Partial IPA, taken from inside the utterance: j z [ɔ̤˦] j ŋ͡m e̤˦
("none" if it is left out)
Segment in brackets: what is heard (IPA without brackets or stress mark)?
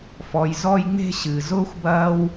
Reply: ɔ˦